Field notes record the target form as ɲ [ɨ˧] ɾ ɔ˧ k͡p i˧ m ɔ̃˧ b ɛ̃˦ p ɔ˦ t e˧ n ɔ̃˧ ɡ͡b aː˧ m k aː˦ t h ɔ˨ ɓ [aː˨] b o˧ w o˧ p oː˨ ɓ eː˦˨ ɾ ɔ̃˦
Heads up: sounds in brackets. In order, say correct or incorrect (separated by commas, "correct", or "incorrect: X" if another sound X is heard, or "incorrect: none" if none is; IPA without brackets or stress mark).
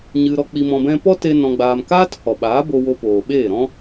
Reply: correct, incorrect: aː˨˦